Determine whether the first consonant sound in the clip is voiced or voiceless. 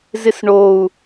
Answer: voiced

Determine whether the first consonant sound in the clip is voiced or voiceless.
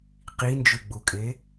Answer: voiceless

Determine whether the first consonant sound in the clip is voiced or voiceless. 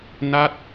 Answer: voiced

